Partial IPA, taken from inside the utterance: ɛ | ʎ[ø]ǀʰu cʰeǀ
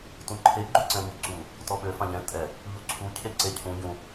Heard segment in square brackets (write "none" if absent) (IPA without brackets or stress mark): u